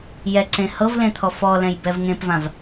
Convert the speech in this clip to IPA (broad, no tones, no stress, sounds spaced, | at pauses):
j ɛ ǀ ẽ h ɤ v l ẽ t̪ʰ ɔ f ɔ l ɛ̃ j b ɛ v ŋ ẽ p v ã v